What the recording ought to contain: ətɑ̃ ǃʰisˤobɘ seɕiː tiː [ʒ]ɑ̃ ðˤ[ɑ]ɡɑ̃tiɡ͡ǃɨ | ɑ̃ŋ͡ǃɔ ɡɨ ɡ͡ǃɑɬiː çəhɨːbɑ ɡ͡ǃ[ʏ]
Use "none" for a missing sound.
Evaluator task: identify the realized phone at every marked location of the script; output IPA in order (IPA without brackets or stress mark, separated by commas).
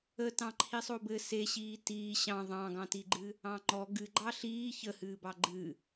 ɕ, ɑ̃, ɨ